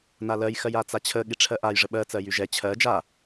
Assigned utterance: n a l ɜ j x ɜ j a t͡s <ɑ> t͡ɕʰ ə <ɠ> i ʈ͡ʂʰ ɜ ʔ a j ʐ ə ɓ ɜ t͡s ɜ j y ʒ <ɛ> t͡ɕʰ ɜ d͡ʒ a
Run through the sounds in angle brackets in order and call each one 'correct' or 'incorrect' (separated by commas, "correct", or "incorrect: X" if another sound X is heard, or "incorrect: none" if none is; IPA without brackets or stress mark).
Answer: incorrect: a, correct, correct